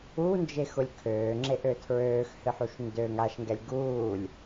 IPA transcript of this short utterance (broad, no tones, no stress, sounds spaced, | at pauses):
u n d͡ʒ e x ʊ lʲ kʰ øː ŋ͡ǁ e ʔ ø tʰ ɹ øː x h ɨ ħ u ʃ n d ø ŋ a ʃ ŋ ɡ ɛ lʲ ɡ uː lʲ